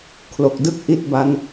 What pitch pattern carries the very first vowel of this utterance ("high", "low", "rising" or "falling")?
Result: low